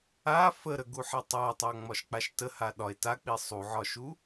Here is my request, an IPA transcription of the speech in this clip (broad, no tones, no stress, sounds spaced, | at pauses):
a f ə ɾ ə ɡ u ħ a tˤ a tˤ a ŋ͡m ɒ ʃ k͡p a ʃ t ə h a ɗ ɒ e̯ t a k͡p i sˤ u ʕ ɒ ʃ u